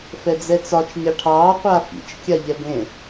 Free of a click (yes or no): yes